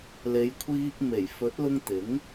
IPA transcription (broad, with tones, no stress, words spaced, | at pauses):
le˨˧jkʷʰiː˧k̚ me˨˩jfɵ˨˥t̚lʊ˧ŋ t̪ɪ˨˥ŋ